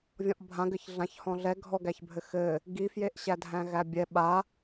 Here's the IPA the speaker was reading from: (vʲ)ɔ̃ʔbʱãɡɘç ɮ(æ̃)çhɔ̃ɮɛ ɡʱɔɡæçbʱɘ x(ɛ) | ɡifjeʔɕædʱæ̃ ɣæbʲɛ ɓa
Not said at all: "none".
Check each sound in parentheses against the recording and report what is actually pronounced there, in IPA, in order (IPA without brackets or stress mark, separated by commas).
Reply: vʲ, ã, ɘ